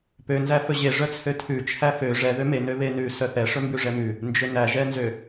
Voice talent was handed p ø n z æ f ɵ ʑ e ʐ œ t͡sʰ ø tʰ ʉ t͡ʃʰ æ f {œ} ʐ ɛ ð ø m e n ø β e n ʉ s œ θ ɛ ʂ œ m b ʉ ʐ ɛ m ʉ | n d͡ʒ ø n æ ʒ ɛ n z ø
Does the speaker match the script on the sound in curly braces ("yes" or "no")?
no